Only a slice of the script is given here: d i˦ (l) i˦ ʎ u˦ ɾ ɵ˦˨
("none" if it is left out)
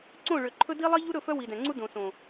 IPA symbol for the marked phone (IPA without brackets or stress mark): lˠ